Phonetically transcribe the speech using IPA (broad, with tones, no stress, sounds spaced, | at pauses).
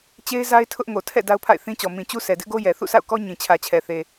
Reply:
t͡ɕ e˦ ɪ̯ z a˦ ɪ̯ tʰ ʊ˦ ʔ ŋ o˨ tʰ ɛ̰˦˨ d a˦ ʊ̯ pʰ a̰˦˨ ɪ̯ θ ĩ˦ t͡ɕ ɔ˨ m ĩ˨ t͡ɕ u˦ sʰ ɛ˨ d ɪ˦ ʔ ɡ o˦ j ɛ˨ θ ṵ˦˨ sʰ a̰˦˨ ʊ̯ k ɔ˦ ɲ ĩ˨ t͡ɕʰ ä˨ t͡ɕʰ ɛ˨ θ e˨